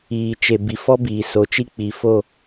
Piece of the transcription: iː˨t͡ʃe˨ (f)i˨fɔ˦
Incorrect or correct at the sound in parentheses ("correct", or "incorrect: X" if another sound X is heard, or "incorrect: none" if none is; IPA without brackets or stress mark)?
incorrect: b